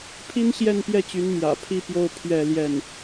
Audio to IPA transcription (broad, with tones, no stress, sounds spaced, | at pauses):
pʰ i˥ n ɕ j ɛ˥˧ n p j ɛ˥˩ t͡ɕ y˧˥ n m j ä̰˨˩ pʰ i˥˧ p j o˥˧ ʊ̯ pʰ ɥ ɛ˥˧ l j ɛ˥˩ n